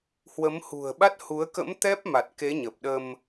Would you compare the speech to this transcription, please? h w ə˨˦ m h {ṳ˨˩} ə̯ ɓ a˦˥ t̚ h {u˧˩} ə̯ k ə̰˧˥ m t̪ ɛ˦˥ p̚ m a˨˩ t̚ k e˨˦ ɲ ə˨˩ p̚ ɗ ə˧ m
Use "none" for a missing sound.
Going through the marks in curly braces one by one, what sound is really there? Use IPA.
ṳ˨˩, u˨˦

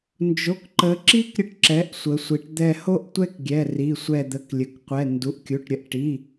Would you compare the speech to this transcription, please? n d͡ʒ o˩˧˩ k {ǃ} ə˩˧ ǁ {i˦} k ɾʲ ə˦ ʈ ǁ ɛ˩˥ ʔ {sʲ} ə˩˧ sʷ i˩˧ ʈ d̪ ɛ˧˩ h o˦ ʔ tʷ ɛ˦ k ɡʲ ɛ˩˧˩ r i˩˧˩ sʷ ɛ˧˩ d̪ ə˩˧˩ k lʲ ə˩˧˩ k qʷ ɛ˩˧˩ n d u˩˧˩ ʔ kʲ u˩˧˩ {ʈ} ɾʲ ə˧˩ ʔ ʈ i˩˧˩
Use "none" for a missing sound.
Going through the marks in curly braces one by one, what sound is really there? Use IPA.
ǃ, i˦, sʷ, ʈ

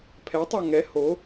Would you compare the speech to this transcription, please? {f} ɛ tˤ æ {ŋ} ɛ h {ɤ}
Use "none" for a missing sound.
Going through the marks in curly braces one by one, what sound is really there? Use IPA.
pʰ, ŋ, o

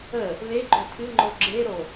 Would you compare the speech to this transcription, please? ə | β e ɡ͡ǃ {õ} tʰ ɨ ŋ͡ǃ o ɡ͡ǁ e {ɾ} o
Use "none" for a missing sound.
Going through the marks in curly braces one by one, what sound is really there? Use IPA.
o, ɾ

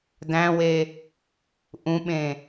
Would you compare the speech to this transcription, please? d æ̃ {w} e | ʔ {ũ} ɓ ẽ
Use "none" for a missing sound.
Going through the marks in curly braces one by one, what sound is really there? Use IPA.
w, ũ

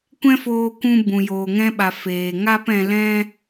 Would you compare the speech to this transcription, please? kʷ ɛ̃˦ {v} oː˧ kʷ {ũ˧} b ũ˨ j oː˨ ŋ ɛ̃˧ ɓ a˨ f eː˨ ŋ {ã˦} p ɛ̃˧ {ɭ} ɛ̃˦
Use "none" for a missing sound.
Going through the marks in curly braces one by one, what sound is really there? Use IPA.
f, ũ˧, a˦, l

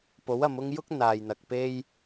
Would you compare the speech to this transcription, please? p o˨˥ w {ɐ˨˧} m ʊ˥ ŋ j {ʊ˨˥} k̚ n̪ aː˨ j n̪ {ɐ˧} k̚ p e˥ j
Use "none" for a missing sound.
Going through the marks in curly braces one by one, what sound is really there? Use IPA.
ɐ˨˧, ʊ˥, ɐ˨

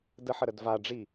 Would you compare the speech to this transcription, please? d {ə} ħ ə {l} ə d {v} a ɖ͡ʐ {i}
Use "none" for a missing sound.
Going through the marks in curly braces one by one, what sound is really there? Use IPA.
ə, ɾ, v, i

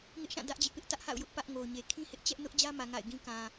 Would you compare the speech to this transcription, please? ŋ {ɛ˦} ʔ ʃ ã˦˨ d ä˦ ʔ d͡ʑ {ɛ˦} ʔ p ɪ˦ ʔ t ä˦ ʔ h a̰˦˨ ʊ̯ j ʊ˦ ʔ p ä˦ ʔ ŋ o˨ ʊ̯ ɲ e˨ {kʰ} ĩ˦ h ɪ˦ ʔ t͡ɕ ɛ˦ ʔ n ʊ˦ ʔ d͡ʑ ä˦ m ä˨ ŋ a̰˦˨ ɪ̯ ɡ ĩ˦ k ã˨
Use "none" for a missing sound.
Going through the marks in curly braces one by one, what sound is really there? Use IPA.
ɪ˦, ɪ˦, kʰ

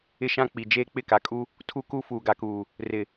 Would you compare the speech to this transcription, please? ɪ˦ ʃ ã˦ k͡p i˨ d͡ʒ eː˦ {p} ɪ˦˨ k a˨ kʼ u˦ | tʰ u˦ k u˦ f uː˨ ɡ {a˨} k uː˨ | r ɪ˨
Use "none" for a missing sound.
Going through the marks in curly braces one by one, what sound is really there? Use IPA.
k͡p, a˨

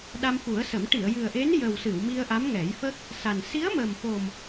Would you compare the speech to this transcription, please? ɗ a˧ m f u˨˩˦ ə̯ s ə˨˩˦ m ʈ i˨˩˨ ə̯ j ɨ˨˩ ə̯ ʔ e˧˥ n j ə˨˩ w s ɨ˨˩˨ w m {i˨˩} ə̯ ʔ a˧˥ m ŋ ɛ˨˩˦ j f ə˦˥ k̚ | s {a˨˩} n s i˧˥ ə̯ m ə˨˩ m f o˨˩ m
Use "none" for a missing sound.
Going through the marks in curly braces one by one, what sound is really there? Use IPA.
i˧, a˨˩

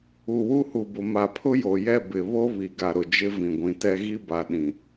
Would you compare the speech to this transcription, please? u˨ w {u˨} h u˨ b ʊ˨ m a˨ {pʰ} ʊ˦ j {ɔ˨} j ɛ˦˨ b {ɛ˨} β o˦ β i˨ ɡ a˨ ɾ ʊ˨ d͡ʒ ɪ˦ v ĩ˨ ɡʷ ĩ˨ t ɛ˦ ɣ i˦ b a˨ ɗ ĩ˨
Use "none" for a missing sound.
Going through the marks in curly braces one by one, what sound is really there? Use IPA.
u˦, pʰ, o˨, ɪ˨

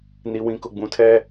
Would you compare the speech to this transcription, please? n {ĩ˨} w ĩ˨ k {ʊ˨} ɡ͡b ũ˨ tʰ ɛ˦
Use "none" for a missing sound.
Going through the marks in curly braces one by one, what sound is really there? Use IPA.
i˨, ʊ˨

